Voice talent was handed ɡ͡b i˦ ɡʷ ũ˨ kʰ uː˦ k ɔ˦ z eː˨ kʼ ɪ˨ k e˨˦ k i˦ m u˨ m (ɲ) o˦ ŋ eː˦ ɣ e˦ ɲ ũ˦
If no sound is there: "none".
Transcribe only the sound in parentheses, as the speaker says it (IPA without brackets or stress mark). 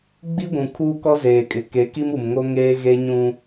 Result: ŋ